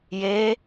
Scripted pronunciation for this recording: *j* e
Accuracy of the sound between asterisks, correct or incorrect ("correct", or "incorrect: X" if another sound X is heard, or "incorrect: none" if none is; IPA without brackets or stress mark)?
correct